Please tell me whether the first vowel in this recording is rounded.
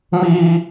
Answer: no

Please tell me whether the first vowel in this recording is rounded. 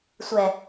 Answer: no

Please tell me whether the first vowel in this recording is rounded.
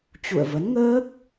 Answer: yes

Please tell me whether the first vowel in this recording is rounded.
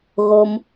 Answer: yes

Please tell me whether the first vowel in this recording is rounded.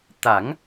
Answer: no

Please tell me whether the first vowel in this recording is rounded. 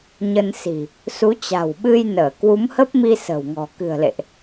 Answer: no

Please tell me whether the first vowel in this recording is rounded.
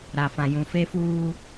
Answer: no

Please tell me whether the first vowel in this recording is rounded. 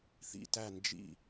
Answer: no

